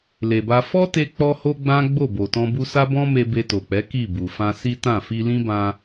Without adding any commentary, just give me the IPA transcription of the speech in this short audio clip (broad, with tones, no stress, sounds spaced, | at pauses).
l e˨ b a˧ f ɔ˦ t e˧ k͡p ɔ˧ h o˦ ɡ͡b ã˦ ɡ͡b o˦˨ b o˨ t ɔ̃˧ b u˧ s a˦ b ɔ̃˦ m e˧ b e˧ t o˨ k͡p ɛ˨˦ k i˦˨ b u˨ f ã˧ s i˦ t ã˦˨ f i˧ l ĩ˦ b ã˧